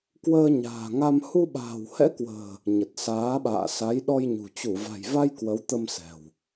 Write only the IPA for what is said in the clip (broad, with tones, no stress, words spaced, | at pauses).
kwəː˧ɲa̤ː˨˩ŋa˧m hu˧ɓa̤ː˨˩whɛ̰˧˥kwə̤ː˨˩ | ɲə˨˩t̚saː˨˦ɓa̰ː˧˨ sa˨˦jɗɔ˧jɲṳ˨˩ t͡ɕu˧˩va̤˨˩jva˧j kwə˨˦wt̪ə˧msɛ̤˨˩w